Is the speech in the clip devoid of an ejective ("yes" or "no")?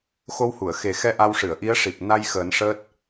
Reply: yes